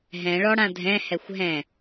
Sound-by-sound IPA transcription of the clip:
ɦ ɛ̃ ɭ ɔ ɽ ã dʱ ɛ̃ h ɛ xʷ ɦ ɛ̃

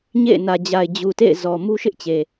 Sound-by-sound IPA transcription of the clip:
ɲ ḛ˦˨ ɪ̯ n ä˨ d͡ʑ a˨ ɪ̯ d͡ʑ u˨ t ḛ˦˨ ɪ̯ z ɔ˨ m u˦ ʃ ɪ˦ ʔ t͡ɕ e˨

